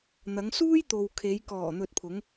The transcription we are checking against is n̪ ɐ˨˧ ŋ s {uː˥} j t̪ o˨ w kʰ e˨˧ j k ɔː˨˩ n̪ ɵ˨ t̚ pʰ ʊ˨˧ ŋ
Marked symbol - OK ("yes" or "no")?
yes